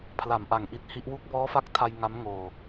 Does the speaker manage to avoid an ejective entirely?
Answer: yes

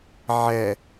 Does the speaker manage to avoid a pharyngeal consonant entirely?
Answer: no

